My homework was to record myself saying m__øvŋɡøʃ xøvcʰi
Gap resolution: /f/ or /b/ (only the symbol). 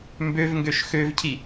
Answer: b